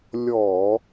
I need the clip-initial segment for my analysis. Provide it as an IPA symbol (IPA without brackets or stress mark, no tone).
lʲ